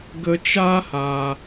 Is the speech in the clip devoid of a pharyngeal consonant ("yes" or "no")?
yes